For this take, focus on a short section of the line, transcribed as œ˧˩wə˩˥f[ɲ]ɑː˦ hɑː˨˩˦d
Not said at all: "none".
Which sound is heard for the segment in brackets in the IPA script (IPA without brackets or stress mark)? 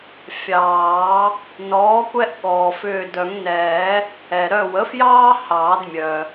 j